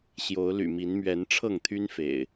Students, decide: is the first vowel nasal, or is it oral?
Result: oral